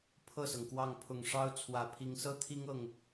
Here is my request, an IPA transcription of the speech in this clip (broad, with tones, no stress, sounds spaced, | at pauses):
pʰ ɤ˥˩ s ɤ˩ ŋ k w ɑ˥˩ ŋ pʰ ʊ˨˩ ŋ ʂ ɑ˥ ʊ̯ t͡sʰ w ä˨˩ pʰ i˧˥ ŋ s ɤ˥ t̪ʰ i˥ ŋ ɤ˥˩ ŋ